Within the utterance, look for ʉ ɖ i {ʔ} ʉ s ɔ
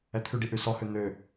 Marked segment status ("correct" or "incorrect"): correct